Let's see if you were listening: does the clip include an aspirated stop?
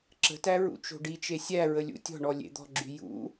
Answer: no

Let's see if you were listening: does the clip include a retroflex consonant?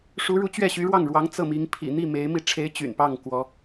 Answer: yes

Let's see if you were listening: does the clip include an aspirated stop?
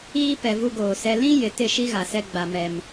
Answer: no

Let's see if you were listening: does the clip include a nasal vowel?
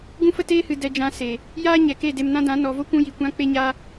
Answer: yes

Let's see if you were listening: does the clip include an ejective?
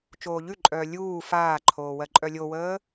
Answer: yes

